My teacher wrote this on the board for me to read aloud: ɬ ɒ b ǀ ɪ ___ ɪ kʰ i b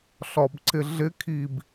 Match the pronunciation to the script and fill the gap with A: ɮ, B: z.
A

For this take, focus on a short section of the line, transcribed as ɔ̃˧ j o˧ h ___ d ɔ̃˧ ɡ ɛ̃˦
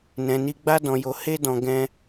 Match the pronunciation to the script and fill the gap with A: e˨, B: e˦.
B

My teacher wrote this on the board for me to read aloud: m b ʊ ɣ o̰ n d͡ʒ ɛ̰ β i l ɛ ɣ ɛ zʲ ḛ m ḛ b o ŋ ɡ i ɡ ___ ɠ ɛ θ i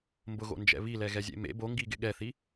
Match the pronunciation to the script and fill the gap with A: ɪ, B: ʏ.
A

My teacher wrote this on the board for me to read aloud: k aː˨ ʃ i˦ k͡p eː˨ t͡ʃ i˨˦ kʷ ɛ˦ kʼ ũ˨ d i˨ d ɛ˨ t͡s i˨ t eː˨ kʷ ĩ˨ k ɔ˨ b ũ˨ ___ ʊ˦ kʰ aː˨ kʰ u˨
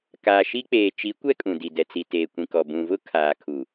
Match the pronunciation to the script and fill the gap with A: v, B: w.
A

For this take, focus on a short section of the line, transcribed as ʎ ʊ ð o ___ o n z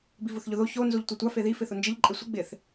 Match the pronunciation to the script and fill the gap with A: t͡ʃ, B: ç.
B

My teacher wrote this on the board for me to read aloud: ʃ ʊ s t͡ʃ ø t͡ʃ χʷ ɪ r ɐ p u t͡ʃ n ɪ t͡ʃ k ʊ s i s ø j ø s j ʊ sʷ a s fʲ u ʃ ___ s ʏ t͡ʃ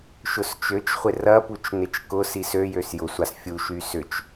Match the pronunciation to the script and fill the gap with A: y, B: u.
A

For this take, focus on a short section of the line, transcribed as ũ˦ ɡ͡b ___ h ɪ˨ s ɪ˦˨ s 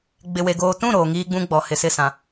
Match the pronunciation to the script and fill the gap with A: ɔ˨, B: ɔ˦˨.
A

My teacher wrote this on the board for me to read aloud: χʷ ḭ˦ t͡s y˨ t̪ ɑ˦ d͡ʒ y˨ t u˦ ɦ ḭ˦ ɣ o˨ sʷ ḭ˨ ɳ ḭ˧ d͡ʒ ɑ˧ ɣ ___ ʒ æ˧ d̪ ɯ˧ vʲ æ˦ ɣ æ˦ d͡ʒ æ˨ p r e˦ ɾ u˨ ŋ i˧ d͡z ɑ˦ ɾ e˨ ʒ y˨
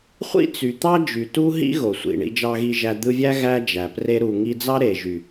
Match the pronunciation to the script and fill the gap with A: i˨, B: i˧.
B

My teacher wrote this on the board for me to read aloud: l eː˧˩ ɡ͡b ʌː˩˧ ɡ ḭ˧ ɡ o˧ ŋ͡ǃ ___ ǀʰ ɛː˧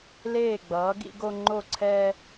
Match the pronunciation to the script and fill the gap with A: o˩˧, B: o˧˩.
B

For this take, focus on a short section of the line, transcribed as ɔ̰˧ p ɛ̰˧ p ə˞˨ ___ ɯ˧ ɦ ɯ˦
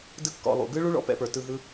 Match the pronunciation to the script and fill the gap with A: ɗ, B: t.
B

